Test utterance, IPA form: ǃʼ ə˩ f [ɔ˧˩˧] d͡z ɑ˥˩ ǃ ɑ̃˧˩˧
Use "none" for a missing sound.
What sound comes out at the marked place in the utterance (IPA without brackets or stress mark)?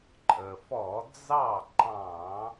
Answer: ɔ˧˩˧